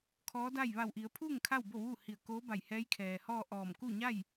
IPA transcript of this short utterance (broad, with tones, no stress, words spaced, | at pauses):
kʰɔː˧˥da˥˨j ʋa˧˩wʔi˩˧ə̯pʰuː˥˨ŋ kʰa˥˨w bo˥˨ʋuː˥˨hi˧˩ə̯ koː˧˥ba˧˩jhɛː˧˥jkʰɛː˩ hɔː˥˨ ʔɔː˧˩m kuː˥˨ɲa˥˨j